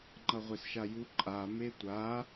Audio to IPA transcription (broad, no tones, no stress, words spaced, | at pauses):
ŋ͡ǃʌʁʷesʃaju ǃʼa metʷa